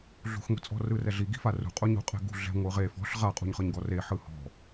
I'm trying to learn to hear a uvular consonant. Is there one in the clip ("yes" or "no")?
yes